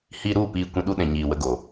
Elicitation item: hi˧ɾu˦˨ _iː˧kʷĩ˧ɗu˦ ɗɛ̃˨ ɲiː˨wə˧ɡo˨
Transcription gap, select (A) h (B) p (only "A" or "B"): B